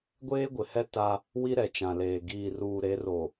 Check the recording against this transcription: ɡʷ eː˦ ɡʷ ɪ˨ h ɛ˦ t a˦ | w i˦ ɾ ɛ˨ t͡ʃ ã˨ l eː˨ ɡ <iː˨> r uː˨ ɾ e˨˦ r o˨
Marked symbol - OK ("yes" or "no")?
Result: yes